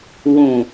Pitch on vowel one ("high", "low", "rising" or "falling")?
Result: low